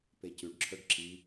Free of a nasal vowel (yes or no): yes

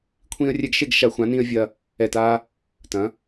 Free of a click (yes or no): yes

